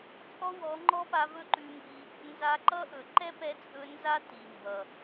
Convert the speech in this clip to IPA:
t͡sʼɔ˦wɔ˨˦ŋ͡ǃɔ˦pa˧ vɵ˦ǃʉ˧mbi˧ | nza˧ǃʌ˦ʔɵ˨ ǃɛ˦pɛ˧t͡sʼɵ˧ nza˦ ti˨mbʌ˨

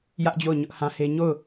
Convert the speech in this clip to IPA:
jä˦ʔd͡ʑo˦˨ʊ̯ ɲʊ˦ʔhã˦he˦ ɲo˦˨ʊ̯

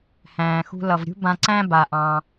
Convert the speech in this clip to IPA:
hæ̃ː˩xṳ˧ lʌ˩vɾʲṳ˥bã˧ǀæ̃˥ ba˩ʔɑ̃˩

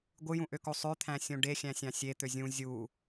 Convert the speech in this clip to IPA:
ɡʷɯjũʔøko sˤøt̪ʰæ̃sʲõ ɖexʲæ̃sʲɑ̃ sʲet̪ø zʲũ zʲu

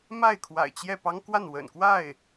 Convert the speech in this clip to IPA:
ma˥˩ɪ̯kʰwa̰˨˩ɪ̯t͡ɕjɛ˥˩pɑ˥ŋ kwa˥˩nwə̰˨˩nkwa˥˩ɪ̯

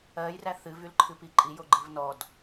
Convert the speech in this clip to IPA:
ɜjræ θɨvylǃʰɨpi ǃʼijoɡ͡ǃɨv nɔd

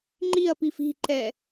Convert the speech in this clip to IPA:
ŋ͡ǃiɐ̯pif i̤ǃɛ

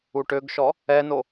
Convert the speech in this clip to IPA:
uʈøɡʃɔ | ɛno

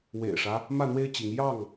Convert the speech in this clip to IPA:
wḛ˨˩ɪ̯ʂä˦ | mä˥˨n̪we˦ɪ̯t͡ɕi˨˦ŋ jɑ˥˨ŋ

